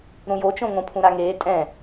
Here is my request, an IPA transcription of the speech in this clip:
ɾ ũ j o t͡ʃ õ ŋ õ pʰ ũ ɾ a ŋ eː tʼ ɛ̃

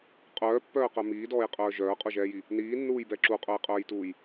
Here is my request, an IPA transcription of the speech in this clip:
qʼ œː pː œː q œ m iː d ɔː j qʼ œː ʒ œː qʼ u ʒ ɛː j i | n iː nː uː j b ɛ ǁ u qʼ œ j qʼ œː j t uː j

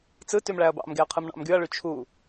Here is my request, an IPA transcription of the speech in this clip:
t͡s ɯ t y m ɭ æ ɐ̯ b ɑ̰ m ɡ e ɐ̯ qʰ ɯ m ɳ ɑ̰ m ɡ y ɐ̯ ɭ y t͡ʃʰ u

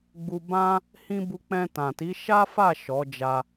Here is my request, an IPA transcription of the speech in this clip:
ɡ͡b u˧ b ã˦ | h ĩ˦ b u˧ k͡p ɛ̃˧ t ã˨ t i˨˦ ʃ a˦ f a˦˨ ʃ ɔ˨˦ d͡ʒ a˧

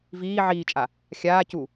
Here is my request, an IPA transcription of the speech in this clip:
v iː ʕ iː t͡ʃʼ a | xʲ aː c u

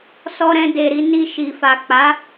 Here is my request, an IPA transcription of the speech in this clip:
s ɔ˧ ɾ ɛ̃˧ d e˨ ɾ i˨˦ n i˧ ʃ i˨ f a˨ k͡p a˨˦

